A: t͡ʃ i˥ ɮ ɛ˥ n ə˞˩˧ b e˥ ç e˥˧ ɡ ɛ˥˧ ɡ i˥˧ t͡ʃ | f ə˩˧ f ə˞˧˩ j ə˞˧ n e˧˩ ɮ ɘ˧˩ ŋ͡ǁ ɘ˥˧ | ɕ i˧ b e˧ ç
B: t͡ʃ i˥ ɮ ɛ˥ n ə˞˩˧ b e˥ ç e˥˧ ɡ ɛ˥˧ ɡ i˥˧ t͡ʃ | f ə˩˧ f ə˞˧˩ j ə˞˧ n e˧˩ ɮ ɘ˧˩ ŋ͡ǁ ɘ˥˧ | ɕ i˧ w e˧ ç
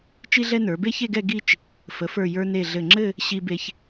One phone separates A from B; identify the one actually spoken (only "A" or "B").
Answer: A